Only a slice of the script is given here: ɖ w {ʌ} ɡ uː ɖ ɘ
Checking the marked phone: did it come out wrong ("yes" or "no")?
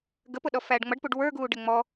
yes